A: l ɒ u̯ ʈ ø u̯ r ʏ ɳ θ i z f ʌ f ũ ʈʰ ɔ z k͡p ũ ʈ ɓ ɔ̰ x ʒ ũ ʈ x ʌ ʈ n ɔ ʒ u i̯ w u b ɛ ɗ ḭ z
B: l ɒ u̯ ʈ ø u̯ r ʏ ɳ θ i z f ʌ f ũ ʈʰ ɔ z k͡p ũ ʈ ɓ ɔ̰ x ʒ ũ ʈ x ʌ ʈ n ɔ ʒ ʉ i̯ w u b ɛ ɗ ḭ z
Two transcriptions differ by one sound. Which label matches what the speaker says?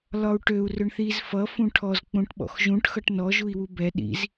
A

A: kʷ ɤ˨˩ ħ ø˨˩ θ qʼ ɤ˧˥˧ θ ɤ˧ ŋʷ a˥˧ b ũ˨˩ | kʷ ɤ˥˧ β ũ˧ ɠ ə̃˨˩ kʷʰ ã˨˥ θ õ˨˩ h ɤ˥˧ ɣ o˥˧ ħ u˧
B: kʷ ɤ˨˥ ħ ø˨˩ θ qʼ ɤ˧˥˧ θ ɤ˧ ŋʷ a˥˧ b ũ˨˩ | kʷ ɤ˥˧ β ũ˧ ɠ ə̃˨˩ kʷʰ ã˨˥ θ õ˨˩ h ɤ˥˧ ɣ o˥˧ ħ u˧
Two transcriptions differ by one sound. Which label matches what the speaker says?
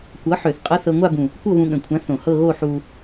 B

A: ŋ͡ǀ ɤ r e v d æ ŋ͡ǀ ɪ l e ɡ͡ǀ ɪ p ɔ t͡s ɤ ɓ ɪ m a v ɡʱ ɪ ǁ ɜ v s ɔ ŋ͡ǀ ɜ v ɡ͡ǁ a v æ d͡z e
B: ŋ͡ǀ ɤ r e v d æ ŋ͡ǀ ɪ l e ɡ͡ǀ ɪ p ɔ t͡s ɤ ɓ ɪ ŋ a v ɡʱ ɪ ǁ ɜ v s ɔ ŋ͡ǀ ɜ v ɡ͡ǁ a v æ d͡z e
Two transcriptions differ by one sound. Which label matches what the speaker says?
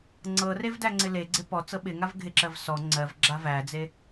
B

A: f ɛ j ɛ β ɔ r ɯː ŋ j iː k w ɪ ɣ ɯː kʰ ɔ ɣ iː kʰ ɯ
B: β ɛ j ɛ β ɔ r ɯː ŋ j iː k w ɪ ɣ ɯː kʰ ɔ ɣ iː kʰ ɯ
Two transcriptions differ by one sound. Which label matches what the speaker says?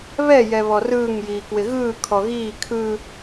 B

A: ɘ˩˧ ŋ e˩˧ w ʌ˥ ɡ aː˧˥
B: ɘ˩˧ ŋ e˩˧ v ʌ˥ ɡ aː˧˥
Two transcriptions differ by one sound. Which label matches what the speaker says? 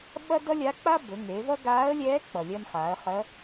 B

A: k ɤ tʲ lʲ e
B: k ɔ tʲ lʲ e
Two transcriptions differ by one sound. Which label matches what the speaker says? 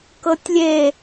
A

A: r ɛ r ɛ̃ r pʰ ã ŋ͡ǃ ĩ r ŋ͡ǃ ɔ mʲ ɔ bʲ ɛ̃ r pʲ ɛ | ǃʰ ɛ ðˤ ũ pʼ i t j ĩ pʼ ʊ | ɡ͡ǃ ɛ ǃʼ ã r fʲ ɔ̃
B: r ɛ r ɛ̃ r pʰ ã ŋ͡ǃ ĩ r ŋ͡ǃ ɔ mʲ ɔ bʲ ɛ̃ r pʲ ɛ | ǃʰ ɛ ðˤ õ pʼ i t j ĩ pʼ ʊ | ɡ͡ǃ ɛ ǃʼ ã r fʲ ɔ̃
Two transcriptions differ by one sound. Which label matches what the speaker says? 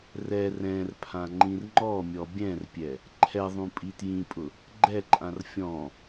A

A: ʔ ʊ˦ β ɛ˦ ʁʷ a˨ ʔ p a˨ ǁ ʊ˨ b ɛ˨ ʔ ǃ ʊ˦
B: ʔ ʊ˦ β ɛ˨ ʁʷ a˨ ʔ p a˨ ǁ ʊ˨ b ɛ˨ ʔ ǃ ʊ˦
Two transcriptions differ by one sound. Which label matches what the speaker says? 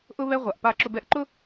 A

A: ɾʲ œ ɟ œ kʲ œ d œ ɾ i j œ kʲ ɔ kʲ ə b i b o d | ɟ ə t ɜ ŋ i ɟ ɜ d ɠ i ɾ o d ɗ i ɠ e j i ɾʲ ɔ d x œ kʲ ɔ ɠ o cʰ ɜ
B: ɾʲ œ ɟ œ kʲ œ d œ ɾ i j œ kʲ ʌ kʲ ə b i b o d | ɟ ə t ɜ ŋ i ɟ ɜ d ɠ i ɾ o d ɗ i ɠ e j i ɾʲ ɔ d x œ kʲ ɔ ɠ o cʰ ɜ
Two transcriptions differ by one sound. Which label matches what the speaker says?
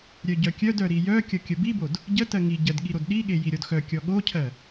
B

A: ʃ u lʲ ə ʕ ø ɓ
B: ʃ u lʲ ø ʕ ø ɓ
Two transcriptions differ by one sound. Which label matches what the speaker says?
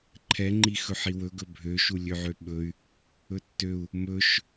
B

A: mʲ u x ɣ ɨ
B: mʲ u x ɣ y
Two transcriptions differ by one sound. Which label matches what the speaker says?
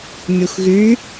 B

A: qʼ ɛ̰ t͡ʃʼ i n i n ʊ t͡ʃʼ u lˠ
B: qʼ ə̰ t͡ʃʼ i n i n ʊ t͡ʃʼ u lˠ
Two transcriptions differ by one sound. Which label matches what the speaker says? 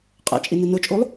A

